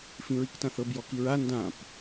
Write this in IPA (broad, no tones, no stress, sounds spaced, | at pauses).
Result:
f ĩ ɹ i k t ã θ ɤ b j ɔ k i ɹ a n d ã p